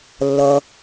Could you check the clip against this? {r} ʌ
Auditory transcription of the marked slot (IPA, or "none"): lː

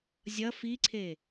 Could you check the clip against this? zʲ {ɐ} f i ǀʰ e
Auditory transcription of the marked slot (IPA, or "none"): ɐ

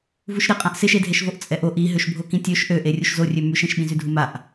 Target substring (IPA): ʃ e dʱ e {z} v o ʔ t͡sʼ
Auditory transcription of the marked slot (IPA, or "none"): ʃ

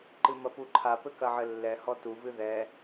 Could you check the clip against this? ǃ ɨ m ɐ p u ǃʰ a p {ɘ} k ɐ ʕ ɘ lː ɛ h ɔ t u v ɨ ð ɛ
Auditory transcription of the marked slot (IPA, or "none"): ɘ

